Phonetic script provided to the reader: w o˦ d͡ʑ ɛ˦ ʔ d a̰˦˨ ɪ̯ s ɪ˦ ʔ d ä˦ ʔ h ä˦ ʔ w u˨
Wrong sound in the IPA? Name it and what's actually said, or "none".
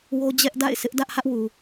none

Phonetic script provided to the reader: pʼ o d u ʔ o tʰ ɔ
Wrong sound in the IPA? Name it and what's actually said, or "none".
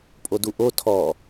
none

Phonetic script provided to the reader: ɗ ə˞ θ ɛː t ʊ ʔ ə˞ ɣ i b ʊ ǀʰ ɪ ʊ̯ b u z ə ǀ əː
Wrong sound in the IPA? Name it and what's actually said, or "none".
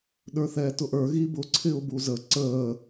none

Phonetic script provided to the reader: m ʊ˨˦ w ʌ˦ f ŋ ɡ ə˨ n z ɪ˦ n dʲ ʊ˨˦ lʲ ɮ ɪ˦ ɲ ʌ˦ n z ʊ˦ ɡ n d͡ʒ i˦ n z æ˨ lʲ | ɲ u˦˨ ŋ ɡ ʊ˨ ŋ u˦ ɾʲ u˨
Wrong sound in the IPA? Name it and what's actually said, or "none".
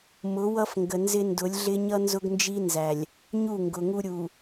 dʲ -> d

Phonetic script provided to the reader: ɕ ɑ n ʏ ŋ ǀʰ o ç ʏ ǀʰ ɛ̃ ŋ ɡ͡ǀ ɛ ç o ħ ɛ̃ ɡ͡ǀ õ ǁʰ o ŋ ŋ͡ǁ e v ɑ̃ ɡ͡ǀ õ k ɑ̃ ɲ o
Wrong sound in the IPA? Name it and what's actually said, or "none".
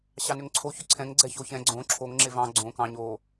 ħ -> ç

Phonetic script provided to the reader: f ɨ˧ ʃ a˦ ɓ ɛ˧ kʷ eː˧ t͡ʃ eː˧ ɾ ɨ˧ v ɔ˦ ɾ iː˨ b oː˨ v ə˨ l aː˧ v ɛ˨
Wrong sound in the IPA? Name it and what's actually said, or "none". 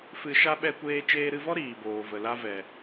aː˧ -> a˧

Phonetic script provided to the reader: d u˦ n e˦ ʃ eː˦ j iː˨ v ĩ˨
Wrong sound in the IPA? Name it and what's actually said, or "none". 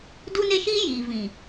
eː˦ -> iː˦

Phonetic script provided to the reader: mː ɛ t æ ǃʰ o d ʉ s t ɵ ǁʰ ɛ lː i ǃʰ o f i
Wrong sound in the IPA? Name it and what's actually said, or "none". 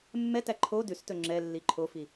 ǁʰ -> ŋ͡ǁ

